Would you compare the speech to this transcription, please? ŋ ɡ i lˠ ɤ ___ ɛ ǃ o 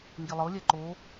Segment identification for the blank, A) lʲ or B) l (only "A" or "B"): A